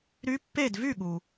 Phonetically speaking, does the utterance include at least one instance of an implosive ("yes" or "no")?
yes